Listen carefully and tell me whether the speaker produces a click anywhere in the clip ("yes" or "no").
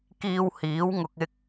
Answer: no